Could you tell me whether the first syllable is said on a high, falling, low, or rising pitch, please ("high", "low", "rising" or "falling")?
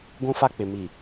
high